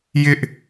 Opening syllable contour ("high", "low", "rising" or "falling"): high